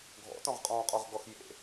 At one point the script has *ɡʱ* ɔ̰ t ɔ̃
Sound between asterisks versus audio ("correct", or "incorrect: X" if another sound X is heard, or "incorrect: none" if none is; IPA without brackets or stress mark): correct